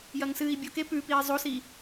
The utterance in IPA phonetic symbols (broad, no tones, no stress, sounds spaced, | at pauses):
j ɐ ŋ s ɨː i̯ bʲ o k e p ʉ p iː zˤ o s i